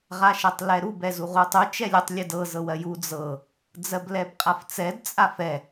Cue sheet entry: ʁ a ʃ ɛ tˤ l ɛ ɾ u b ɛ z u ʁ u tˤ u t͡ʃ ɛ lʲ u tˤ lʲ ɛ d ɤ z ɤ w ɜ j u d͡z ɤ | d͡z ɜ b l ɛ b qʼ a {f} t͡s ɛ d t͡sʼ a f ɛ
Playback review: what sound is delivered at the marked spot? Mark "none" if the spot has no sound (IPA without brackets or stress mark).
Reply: f